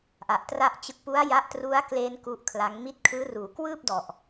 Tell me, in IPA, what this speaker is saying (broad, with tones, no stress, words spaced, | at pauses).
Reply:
ʔa˨˩ʔtra˥˩ʔt͡ɕɯ˦˥k̚ pu˦˥a̯ ja˦˥ʔtru˦˥a̯kle˧n ku˦˥ʔkʰla˦˥ŋ mi˦˥t̚kʰɯː˦˥ruː˩˦ kwɯː˥˩p̚dɔ˨˩ʔ